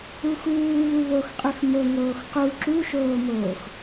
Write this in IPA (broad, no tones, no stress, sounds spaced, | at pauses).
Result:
u x uː β u β o x qʼ y x m o ŋ oː x q u ǁ u ʃ oː m oː x